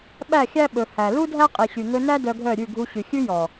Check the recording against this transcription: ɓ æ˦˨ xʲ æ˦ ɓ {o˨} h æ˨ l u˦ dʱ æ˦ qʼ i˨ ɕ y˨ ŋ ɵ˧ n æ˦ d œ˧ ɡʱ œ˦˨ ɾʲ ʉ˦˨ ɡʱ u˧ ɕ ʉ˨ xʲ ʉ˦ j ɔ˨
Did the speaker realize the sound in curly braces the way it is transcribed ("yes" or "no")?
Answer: no